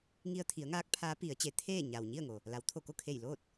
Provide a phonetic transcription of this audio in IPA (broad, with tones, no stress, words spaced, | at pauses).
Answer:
ŋi˧ə̯t̪ʰi˩˧ə̯ŋaː˧˥k̚ pʰaː˧˥pi˩˧ə̯t͡ɕe˩˧t̪ʰeː˥˨ ɲa˩wɲi˥˨ə̯ ŋo˩ | la˩˧w t̪ʰo˧˩ko˥˨kʰe˧˩j loː˥˨t̚